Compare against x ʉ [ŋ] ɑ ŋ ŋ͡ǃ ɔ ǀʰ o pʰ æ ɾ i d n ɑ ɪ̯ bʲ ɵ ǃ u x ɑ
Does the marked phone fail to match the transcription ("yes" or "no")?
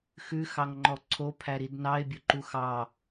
yes